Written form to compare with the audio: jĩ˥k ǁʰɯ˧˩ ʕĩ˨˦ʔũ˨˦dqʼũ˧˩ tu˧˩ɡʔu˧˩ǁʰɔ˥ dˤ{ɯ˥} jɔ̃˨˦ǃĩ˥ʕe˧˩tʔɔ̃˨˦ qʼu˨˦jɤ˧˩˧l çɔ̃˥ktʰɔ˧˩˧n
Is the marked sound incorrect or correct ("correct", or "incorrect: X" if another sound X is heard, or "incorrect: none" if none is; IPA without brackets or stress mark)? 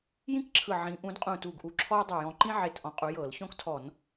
incorrect: ɯ˧˩